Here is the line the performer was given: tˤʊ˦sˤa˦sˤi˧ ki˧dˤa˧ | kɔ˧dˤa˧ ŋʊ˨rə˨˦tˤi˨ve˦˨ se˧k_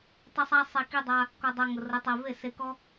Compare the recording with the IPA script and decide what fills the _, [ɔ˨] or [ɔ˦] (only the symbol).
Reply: ɔ˦